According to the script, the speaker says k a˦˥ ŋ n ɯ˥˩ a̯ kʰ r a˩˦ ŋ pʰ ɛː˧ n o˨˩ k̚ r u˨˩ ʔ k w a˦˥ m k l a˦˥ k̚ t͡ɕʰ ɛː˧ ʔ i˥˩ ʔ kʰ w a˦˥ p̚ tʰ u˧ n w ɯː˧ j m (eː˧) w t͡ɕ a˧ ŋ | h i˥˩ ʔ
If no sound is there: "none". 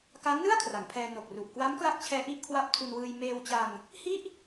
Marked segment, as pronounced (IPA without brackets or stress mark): eː˧